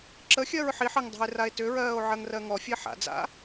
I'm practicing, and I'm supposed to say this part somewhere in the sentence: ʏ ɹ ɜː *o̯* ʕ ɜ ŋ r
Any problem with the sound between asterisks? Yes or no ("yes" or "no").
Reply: no